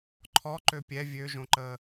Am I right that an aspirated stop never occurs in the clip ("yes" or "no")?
no